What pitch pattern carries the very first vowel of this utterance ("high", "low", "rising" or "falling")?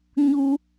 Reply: high